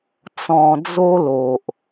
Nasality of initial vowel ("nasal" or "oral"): nasal